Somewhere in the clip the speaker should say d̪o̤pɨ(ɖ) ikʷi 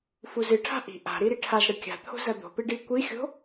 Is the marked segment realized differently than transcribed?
no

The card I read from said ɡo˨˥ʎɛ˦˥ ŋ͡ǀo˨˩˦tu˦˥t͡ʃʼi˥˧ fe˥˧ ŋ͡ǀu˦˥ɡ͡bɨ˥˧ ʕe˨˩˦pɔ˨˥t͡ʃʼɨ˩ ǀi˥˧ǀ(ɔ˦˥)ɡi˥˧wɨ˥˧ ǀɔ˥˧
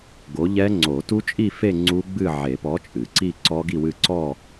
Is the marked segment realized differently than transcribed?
no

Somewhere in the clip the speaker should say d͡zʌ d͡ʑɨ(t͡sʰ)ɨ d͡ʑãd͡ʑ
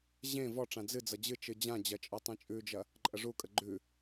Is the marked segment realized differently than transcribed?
yes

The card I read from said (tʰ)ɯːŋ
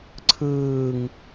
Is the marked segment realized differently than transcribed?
yes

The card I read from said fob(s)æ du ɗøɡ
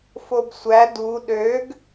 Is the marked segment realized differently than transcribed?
yes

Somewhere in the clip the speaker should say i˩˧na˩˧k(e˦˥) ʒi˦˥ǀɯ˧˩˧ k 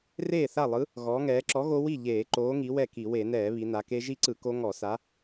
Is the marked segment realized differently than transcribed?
no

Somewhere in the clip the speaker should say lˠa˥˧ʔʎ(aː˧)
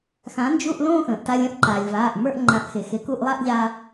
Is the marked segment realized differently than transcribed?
no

